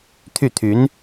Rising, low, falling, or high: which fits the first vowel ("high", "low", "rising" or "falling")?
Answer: falling